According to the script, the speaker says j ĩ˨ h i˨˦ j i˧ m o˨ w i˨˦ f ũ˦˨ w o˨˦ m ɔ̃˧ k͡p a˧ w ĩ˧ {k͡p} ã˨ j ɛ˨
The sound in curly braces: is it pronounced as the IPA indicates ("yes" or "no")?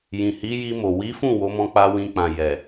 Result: yes